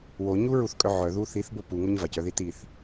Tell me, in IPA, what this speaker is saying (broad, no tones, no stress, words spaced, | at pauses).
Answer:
woɲuɹuθkʼœ ʕœðu θiθbo puŋoɲ vacœði tiθ